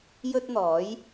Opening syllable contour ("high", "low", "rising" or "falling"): high